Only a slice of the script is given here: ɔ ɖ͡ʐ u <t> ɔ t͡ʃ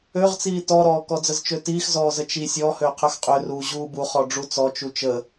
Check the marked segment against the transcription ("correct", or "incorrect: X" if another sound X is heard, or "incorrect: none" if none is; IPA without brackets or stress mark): incorrect: t͡s